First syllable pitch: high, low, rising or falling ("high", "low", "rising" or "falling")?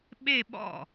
falling